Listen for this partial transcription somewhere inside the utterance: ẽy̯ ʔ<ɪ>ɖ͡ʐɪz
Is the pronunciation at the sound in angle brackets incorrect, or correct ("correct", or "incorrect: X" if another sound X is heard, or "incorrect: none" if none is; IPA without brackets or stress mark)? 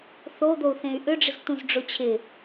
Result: incorrect: ʏ